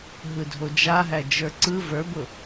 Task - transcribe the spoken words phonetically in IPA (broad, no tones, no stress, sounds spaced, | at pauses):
ɦ ɯ dʱ o d͡ʒ a ɦ æ d͡ʒ ə˞ ǀ ɯ v ə˞ b ʊ